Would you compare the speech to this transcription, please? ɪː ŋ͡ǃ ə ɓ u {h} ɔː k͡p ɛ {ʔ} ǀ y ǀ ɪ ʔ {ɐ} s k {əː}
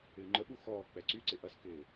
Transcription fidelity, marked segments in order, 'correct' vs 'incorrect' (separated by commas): incorrect, incorrect, correct, incorrect